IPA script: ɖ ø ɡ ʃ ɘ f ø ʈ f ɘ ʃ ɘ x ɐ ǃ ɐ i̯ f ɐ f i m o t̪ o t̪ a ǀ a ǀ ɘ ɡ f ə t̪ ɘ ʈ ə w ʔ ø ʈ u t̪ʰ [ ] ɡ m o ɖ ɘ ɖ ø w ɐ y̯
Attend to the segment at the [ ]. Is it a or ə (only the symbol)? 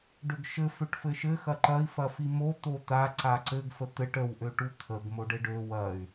ə